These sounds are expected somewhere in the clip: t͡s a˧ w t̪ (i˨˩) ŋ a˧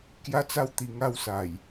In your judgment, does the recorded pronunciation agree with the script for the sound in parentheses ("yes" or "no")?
yes